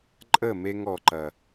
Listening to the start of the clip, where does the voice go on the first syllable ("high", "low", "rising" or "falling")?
falling